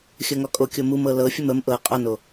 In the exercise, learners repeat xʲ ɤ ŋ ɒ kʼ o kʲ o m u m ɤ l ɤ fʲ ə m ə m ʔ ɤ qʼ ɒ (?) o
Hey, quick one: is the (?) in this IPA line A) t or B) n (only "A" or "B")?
B